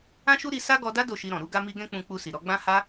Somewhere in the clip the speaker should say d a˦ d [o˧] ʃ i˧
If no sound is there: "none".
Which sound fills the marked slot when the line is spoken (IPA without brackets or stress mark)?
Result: o˦˨